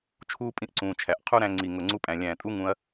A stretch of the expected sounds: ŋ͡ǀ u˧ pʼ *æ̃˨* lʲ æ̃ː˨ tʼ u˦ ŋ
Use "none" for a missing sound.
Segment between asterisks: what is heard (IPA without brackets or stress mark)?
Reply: æ̃˨